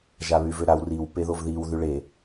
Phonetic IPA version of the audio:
ʒaβyvøɾaw riw peðovðiw ðyɭe

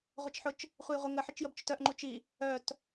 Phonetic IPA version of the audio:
ʁʷət͡ʃħʊt͡ʃ | χʷejʁʷɪ ŋəħɪt͡ʃjəb t͡ʃʊtœʔŋ͡ǃu t͡ʃi | œt

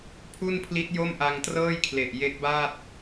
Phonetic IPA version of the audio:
pʰu˥˩npʰli˦˥t̚ jo˥˩mʔa˧ŋtrɤː˥˩jkʰle˨˩ʔ je˦˥k̚baː˥˩t̚

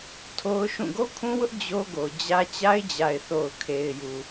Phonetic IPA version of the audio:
tʰo˦ʊ̯ ʃũ˦˨ ɡo˦kʰũ˦wʊ˦ʔ d͡ʑo˦ɡo˨d͡ʑä˦ t͡ɕa˦ɪ̯d͡ʑa˨ɪ̯θo˨ʊ̯ kʰe˨ɪ̯ju˨

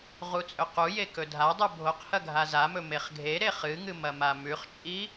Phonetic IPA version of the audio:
ʁut͡sʼɵquje kɵdʱadˤʉ bʱoqhɐ ɡʱazamɵ meχɡʱeɾe χɨŋɨ mɐmamʉχt͡ʃʼi

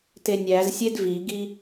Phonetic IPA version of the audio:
tenʲæzsʲed viɡi

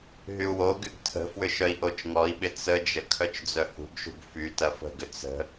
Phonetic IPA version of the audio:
ɦyu̯woɡyɡ tʰə̤fwʏ ʃœi̯ʔot͡ʃŋɔi̯ɓɪ t͡səd͡ʒə kʰœt͡ʃd͡zœhṳɡʃṳɡ fytɐ fə̤ɡʏ t͡sə̤

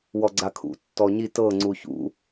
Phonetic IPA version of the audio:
wɔɡ͡ǀakʰṵ tːɔɲit ɤ ŋ͡ǀuçṵ

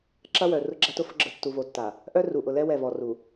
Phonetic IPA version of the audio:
ǁɐ˦wœ˨ rʊ˦ɡ͡ǁa˦tʊ˦fʊ˦ ɡ͡ǁə˨ tːu˨vo˨tːa˨ | ʔœ˦ru˨ʔʊ˨lɛ˦ wɛ˦˨vɔ˨ru˨

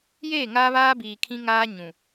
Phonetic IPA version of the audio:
jeː˦˨ŋaː˦βaː˦biː˨ kʰĩ˦ŋaː˦ ɲũ˨

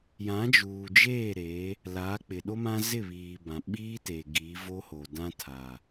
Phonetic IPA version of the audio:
jã˨˦d͡ʒuː˨d͡ʒeː˦˨ ɾe˨˦ | laː˨˦k͡pɪ˨ɗo˦mã˦ zɪ˦˨βiː˨bã˨ ɓiː˦te˨ ɡiː˨˦vo˦ho˨dã˦ tʰa˨

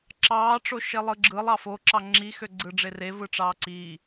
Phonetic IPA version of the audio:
ǁɑːʈ͡ʂo ʃelˠɯɡ͡ǁɯlˠ ɑfoǁɑ ŋ͡ǁi xøɡ͡ǀɯɖ͡ʐere vɯʈ͡ʂɑːǀiː

